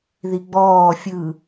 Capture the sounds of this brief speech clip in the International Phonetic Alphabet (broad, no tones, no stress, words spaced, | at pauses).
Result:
ðiɡ͡bɔː fʲɯ